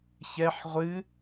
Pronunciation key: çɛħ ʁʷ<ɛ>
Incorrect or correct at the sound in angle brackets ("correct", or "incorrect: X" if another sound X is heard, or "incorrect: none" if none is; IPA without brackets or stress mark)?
incorrect: ɨ